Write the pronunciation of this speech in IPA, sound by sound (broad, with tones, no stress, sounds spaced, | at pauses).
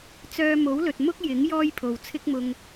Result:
t͡s œː˧ m o˨˥ w l ɵ˨ t̚ m ʊ˥ k̚ j ɪ˨˥ ŋ j ɔː˥ j pʰ o˨ w t͡sʰ ɪ˥ k̚ m ʊ˧ ŋ